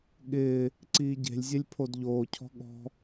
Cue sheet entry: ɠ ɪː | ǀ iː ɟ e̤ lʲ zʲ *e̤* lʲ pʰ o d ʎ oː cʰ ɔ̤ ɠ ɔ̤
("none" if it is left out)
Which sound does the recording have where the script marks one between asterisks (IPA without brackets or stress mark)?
e